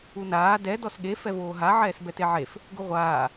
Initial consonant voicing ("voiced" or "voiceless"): voiced